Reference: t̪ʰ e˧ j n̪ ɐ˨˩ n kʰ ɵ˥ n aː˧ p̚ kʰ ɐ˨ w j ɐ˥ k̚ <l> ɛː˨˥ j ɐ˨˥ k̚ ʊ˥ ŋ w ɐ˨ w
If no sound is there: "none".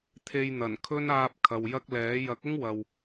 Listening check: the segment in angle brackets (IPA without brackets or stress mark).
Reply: l